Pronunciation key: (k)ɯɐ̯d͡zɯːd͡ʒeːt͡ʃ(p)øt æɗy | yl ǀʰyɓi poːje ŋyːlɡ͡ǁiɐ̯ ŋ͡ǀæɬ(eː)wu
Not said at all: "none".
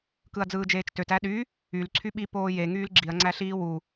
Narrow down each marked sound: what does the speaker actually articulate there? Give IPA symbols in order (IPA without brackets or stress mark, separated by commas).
k, t, iː